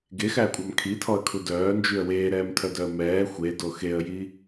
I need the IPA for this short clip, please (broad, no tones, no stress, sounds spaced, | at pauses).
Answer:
ɡ e x æ kʷʼ ɑ m kʰ i tʰ ɔ ə̯ kʰ u d œː n d͡ʒ y ə̯ w eː ɾ ɛː m tʰ œ d œ ə̯ m ɛː xʷ e d o x e ə̯ j i